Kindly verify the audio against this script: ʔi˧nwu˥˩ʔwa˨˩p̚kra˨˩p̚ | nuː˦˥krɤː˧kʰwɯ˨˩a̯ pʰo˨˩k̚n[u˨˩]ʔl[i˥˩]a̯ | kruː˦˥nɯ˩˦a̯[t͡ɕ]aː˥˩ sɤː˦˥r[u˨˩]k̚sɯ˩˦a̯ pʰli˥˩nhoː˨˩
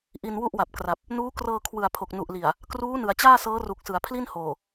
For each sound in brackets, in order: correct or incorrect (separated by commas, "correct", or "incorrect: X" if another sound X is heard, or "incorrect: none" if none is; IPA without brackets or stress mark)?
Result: correct, incorrect: i˨˩, correct, correct